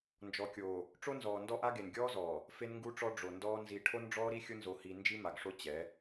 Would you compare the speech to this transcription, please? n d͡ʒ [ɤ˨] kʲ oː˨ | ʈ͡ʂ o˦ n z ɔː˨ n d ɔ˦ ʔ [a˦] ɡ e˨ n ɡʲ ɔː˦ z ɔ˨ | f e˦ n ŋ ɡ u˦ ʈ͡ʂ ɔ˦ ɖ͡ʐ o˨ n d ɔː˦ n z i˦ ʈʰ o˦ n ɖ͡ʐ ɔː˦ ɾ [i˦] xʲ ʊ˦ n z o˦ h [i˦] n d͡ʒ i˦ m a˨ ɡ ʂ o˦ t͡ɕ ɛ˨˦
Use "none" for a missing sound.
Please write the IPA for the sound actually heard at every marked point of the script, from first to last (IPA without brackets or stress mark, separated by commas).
ɔ˨, a˦, i˦, i˦